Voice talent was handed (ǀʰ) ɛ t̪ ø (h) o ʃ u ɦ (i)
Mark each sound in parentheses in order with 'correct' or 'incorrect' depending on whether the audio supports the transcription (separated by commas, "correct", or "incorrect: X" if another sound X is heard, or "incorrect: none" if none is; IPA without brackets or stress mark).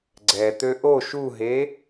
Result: incorrect: ɡ͡ǀ, incorrect: ʔ, incorrect: e